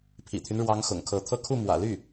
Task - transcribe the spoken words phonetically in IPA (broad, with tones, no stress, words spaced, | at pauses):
pʰḭ˨˩t̪ʰy˦nɻwɑ˧˥ŋ xʊ̰˨˩ŋkʰɤ˧˥t̪ʰɤ˥˧ kʰu˥˩mwä̰˨˩ly˥˩